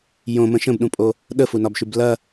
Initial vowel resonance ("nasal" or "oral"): nasal